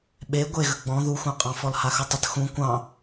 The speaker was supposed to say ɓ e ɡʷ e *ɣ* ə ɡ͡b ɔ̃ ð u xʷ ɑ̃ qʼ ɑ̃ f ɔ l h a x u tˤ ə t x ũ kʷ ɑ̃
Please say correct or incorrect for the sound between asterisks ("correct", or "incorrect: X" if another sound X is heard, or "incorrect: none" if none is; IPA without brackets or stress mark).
correct